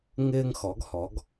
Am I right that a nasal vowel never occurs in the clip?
yes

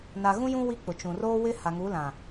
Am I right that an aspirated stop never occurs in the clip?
yes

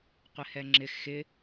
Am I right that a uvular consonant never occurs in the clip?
no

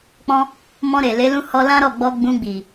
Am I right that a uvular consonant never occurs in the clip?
yes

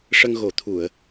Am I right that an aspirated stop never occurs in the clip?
no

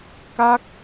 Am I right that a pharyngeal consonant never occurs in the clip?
yes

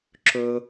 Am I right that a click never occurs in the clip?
no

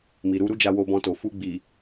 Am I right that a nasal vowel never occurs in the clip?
no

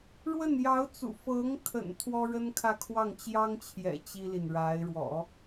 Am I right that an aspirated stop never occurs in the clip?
no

